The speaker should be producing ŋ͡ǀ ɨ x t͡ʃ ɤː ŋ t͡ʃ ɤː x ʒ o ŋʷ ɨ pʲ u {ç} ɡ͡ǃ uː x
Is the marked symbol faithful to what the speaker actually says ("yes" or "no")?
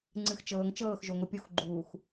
no